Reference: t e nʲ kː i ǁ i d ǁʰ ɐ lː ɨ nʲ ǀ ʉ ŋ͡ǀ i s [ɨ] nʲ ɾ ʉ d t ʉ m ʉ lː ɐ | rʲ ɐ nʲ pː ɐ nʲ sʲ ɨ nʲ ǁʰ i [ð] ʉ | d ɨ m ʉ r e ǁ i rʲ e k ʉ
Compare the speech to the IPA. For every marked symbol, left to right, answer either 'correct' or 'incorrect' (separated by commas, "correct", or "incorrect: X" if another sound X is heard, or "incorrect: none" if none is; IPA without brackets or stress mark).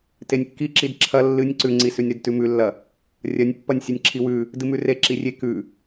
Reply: incorrect: ʉ, incorrect: w